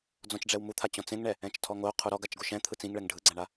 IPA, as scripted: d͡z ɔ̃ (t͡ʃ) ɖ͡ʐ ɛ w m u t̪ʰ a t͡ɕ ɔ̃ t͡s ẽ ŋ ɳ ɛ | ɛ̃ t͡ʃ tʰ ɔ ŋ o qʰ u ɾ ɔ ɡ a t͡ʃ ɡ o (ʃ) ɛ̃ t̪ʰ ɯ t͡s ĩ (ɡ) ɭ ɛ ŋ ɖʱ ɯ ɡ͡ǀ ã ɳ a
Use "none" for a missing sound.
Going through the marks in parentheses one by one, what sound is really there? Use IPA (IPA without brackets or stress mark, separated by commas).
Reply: t͡ʃ, ʃ, ŋ